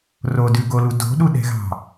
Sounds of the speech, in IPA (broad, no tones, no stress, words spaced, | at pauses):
rodʉɡolu do̤ɗuɗɛ̤ɣɑ̤